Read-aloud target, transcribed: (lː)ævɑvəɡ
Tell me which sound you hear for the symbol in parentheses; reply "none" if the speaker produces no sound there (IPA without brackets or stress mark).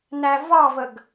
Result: n